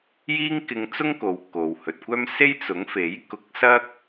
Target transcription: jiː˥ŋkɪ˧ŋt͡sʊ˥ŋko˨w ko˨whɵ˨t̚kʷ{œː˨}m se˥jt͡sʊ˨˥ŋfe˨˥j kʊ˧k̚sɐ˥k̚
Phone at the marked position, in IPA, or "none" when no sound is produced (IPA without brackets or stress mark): œː˥